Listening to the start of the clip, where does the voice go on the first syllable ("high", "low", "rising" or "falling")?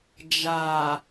low